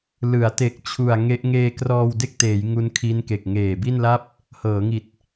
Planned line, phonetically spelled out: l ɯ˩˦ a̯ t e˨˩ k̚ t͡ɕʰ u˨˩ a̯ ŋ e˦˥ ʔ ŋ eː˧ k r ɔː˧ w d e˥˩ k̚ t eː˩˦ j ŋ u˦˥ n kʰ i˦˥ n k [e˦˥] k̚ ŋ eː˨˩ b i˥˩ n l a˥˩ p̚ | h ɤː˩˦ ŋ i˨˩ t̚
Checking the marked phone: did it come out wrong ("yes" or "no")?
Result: yes